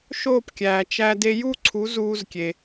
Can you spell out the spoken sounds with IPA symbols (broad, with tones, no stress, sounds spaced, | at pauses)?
ʃ oː˥˩ p kʲ æː˩ t͡ʃ æ˧ d e˧ j u˥ ǀʰ u˩˥ z uː˧ z kʲ e˩